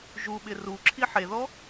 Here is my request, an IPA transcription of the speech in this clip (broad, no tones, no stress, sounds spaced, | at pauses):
ʒ u ɓ ɪ r u ǁʰ i ħ e ð ɔ